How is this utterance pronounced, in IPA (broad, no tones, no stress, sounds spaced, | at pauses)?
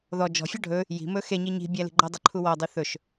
ð ɔ d͡ʒ ɔ̤ fʲ ɔ ɖʱ ɵ | j i̤ m ɵ x e ɲ i ɲ i̤ bʲ æ l i̤ ɡ͡ǃ ɔ dˤ ɵ ǃʰ u w ɔ dˤ i θ ɵ ʃ